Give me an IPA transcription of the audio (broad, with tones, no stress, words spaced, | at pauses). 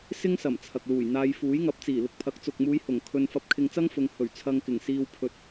sɪ˥ŋsɐ˨˩m t͡sʰɐ˨k̚luː˨˩jn̪aː˧j fuː˨˥jŋɐ˨˥p̚t͡siː˨˩ lʊ˧k̚pʰɐ˨˥k̚ t͡sʊ˨k̚muː˨˧j hʊ˨˩ŋ kʰɵ˧n fɐ˧p̚kʰɪ˧ŋt͡sɐ˥ŋfʊ˨˧ŋ hɵ˨˩ɥ t͡sʰɐ˧ŋkɪ˨˩ŋsiː˧w pʰɵ˨t̚